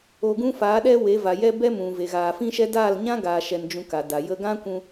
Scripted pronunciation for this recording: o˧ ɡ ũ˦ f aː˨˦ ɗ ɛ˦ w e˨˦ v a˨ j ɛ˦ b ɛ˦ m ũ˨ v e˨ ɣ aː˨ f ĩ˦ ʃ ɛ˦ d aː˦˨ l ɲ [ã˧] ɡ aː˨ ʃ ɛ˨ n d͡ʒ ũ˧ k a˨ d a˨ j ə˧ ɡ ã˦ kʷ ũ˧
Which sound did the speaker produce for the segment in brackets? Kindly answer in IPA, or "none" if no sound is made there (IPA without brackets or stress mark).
ã˦